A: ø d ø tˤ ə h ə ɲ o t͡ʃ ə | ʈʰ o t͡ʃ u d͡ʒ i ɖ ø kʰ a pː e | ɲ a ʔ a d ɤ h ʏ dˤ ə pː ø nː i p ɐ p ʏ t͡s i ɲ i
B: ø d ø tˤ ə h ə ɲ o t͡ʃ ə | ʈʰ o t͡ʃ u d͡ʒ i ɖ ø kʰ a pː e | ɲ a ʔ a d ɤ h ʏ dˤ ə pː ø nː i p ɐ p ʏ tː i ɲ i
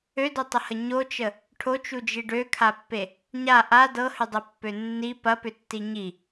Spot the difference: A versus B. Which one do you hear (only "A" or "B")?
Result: B